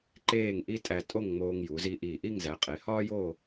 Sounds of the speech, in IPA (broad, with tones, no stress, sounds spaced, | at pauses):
ǃ eː˥˧ ŋ ʔ i˥ tʼ æ˧ tʼ o˥˧ ŋ ŋ͡m oː˧ ŋ j u˩˧ z i˧ ʔ iː˧˩ ʔ i˥˧ ŋ z æ˩˧ qʼ e˩˧ h ɒː˥ j o˥˧